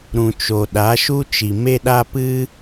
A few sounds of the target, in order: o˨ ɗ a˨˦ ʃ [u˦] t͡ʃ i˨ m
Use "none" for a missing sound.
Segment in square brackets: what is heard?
u˦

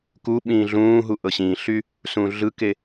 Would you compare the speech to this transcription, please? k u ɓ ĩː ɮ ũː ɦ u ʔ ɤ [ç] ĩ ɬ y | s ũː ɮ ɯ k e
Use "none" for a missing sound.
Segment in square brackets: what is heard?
ɕ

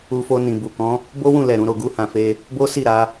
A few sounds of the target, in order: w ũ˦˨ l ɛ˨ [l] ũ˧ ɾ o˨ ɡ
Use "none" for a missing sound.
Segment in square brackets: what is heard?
ɾ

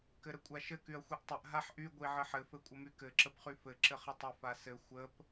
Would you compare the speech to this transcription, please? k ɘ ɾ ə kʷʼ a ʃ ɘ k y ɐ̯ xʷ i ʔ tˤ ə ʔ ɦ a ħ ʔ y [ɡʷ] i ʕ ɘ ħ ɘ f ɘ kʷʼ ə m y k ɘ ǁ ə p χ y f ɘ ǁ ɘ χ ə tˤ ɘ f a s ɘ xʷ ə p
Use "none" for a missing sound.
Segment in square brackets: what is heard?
ɡʷ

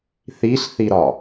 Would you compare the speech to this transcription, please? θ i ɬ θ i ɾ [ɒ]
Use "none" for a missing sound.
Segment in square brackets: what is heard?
ɒ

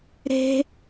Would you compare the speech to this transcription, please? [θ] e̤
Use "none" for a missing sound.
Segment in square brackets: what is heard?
ɾ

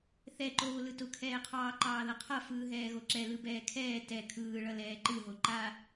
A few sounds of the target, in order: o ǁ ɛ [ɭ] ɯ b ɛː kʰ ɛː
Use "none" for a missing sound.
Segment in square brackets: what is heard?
l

